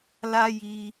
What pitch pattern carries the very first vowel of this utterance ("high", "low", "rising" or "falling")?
high